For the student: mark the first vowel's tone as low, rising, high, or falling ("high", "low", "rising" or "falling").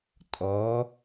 rising